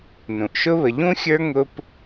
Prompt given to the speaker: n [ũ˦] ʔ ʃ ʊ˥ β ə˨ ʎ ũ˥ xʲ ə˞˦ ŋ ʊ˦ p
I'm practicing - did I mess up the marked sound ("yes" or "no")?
yes